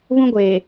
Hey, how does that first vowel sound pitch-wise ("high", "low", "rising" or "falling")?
high